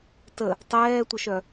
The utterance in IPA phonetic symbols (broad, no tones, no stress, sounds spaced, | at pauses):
t ə | tˤ ɛː tʷ œ ʃ œ